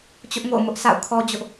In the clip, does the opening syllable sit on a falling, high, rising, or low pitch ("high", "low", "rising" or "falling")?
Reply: high